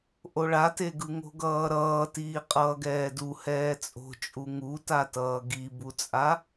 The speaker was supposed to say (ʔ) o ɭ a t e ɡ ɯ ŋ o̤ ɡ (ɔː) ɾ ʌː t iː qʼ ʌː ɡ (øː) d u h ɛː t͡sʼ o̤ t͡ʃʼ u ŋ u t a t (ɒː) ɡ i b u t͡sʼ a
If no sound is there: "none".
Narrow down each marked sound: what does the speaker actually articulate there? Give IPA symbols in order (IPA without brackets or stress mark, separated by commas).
ʔ, ʌː, ɛː, ʌː